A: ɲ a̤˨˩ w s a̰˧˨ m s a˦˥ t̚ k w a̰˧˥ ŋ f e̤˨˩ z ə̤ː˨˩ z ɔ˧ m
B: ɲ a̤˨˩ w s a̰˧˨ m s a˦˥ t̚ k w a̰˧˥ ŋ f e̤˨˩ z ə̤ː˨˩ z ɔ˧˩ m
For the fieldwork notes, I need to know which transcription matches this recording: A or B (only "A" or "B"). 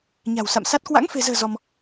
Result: A